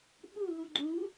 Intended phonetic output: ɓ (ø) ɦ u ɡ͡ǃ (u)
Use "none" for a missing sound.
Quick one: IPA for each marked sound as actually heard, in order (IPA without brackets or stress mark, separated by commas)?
u, u